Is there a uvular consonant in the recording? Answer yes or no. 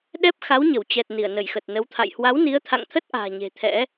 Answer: no